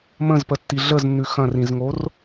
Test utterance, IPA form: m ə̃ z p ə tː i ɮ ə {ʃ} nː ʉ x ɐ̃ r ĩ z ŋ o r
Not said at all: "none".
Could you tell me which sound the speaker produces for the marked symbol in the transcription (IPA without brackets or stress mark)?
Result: z